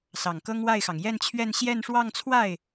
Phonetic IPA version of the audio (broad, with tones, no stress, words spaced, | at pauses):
sɑ˨˩ŋkɤ˥ŋ wa˥˩ɪ̯xɑ˩ŋ jɛ˥˧nt͡ɕʰɥɛ˥˧n ɕjɛ˥˧nʂwɑ˥˧ŋt͡sʰwa˥˩ɪ̯